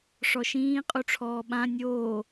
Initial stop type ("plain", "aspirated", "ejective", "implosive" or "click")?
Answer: ejective